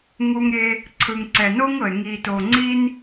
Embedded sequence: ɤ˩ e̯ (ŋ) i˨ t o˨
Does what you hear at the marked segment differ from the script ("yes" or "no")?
no